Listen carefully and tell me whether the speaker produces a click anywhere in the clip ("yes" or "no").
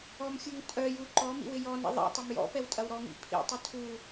yes